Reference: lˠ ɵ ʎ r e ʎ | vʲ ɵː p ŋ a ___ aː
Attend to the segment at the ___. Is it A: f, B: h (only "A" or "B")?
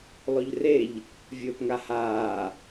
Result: B